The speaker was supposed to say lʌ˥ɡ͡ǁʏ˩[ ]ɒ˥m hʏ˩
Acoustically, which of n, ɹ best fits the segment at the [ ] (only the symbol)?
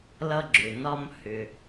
n